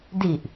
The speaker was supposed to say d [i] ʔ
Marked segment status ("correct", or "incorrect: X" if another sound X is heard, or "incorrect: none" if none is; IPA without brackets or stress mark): correct